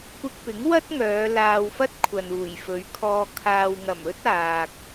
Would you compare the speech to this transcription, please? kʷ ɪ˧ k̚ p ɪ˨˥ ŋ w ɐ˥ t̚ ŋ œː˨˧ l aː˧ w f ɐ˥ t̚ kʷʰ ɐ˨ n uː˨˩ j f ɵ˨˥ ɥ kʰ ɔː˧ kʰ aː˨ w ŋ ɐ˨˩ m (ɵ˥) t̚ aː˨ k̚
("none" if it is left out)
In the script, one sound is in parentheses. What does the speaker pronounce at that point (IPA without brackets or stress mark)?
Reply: ɵ˥